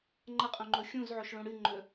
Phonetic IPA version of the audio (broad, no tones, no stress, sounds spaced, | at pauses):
ŋ͡ǃ ɐ qʼ õ ŋ͡ǃ o xʲ ũ z ʕ o ʃ ɭ õ ɽ ɨ ŋ͡ǃ ɵ